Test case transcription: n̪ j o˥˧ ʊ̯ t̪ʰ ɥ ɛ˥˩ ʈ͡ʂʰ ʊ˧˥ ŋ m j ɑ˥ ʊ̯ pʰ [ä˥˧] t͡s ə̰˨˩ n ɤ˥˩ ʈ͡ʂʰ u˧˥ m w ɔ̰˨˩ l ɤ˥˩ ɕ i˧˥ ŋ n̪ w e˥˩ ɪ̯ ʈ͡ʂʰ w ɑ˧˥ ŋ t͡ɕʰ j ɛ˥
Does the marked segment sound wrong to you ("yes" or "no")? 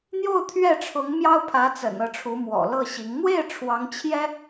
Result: yes